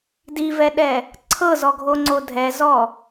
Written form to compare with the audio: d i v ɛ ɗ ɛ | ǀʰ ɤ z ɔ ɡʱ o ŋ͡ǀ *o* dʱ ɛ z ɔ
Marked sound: correct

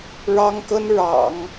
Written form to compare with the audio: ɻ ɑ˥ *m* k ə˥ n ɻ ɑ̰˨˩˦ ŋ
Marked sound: incorrect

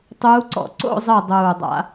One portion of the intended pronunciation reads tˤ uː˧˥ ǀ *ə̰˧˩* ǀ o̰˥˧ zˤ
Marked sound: incorrect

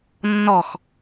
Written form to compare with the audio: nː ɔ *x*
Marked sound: correct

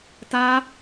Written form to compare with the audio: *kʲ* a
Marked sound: incorrect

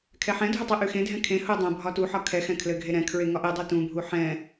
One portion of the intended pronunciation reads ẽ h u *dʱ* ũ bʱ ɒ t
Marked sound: incorrect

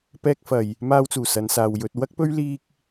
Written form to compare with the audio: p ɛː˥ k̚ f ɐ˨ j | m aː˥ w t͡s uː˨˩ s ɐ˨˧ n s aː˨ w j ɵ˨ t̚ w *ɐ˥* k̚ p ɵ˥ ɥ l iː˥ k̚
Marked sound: correct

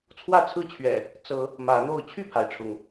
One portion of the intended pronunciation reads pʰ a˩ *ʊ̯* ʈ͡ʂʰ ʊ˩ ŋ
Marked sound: incorrect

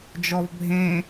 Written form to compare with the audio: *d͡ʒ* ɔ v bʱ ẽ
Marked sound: correct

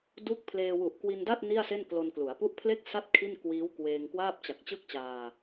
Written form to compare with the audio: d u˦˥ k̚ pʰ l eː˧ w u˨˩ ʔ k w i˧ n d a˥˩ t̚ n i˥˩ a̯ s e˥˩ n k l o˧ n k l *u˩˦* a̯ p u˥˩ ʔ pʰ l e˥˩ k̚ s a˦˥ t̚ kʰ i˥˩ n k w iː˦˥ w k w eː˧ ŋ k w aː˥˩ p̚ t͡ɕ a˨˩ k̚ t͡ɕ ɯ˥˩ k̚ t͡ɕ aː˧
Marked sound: correct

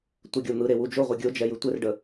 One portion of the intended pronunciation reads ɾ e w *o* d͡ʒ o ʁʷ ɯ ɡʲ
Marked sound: incorrect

